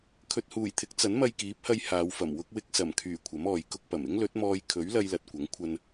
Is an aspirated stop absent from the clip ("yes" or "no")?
no